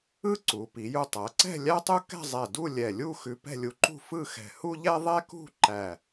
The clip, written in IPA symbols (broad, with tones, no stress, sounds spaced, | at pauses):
ɯ˥˧ ǀ u˩˧ p i˩˧ j u˧ tˤ æ˩˧ ǀ ɛ̤˥˧ lʲ æ˥ tˤ u˥ k ɛ̤˥˧ zˤ ɛ˧˩ d u˥˧ lʲ ɛ˧˩ lʲ u˥˧ x ʉ˧ p ɛ̤˥˧ lʲ u˧ ǃ ṳ˥˧ f ɯ˥˧ x ɛ̤˧˩ h u˥ ʎ ɛ˥ ðˤ ɛ˥ k ṳ˥˧ ǃ æ˧˩